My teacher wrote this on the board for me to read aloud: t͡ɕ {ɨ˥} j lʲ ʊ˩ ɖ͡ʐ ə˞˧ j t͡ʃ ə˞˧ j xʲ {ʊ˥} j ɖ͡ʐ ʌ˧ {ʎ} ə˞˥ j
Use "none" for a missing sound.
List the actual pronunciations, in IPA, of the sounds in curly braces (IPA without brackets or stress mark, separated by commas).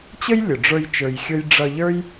ə˥, ʊ˥, ʎ